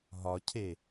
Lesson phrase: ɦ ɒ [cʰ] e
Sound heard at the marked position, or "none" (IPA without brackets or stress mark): cʰ